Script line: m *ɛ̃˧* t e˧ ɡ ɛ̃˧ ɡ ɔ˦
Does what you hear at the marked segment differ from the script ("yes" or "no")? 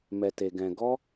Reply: yes